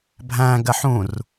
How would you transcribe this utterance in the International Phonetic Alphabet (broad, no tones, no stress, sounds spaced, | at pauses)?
bʱ æ̃ ɡ ɜ ħ ũ r